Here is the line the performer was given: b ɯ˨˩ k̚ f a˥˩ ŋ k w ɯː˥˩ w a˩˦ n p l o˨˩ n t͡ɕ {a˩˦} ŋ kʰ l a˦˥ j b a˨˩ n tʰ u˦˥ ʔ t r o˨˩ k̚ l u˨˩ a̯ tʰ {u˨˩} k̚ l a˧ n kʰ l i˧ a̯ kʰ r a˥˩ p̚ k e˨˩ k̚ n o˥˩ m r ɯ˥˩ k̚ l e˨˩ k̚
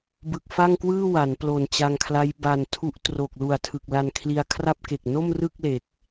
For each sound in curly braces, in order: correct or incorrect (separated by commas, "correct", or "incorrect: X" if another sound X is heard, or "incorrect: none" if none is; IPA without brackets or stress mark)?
incorrect: a˧, incorrect: ɯ˨˩